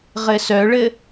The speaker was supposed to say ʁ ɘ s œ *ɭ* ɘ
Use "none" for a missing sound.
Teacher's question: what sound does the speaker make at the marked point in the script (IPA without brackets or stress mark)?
ɭ